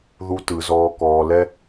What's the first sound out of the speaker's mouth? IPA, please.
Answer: ð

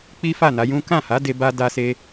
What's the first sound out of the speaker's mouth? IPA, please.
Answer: k͡p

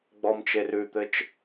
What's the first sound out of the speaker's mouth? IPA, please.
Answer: ɡ͡b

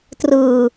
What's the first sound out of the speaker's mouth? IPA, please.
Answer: t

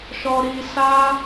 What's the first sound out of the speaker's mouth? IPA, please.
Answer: ʃ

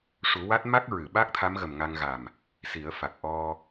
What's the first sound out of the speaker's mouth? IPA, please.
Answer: ʂ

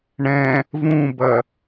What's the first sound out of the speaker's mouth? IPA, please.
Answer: ɳ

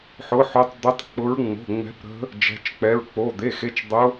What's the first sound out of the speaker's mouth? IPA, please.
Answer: ħ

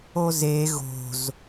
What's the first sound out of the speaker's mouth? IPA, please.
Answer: o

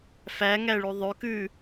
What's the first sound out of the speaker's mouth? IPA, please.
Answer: f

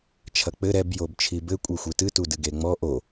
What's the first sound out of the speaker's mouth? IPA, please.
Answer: t͡ʃʰ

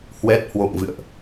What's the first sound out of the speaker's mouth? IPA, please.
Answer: h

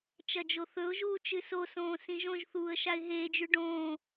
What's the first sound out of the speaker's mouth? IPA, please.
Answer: t͡ʃ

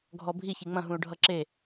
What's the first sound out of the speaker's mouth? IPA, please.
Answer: ɡʱ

